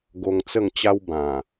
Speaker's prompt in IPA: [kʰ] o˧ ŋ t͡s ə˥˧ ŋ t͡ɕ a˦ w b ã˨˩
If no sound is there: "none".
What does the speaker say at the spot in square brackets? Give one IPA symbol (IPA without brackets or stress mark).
ɡ